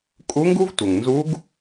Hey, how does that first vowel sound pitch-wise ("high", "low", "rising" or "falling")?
rising